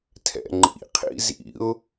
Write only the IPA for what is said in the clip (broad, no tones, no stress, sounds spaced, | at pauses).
tʰ ɛ̰ ŋ͡ǃ ḭ qʰ ḭ z ḭ ʊ̯